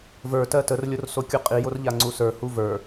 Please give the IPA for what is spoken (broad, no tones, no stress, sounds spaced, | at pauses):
v ə˞ t ɜ t ə r lʲ o r s o kʲ u qʼ i j o r ʎ a ŋ͡ǀ u s ə˞ h u v ə˞